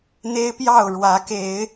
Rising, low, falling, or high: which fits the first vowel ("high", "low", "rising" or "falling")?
high